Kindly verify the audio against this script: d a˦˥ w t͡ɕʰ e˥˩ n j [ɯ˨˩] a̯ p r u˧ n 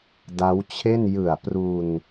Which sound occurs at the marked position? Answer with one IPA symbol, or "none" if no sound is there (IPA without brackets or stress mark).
ɯ˨˩